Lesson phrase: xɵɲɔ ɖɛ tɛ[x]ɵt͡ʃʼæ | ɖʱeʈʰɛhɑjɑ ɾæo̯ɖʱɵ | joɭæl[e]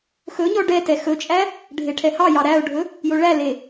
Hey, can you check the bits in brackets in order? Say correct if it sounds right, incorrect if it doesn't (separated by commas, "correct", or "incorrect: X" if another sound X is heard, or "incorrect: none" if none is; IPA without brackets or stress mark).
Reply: correct, correct